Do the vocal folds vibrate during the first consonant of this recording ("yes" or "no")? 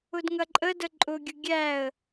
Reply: yes